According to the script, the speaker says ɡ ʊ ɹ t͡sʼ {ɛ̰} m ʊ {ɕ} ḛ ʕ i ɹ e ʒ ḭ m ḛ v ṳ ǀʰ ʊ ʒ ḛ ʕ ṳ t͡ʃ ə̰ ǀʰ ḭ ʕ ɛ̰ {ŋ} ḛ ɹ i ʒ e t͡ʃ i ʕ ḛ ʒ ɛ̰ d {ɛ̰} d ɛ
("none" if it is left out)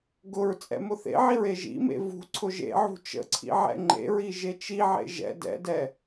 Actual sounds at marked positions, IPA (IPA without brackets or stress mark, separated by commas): ɛ̰, θ, ŋ͡ǃ, ɛ̰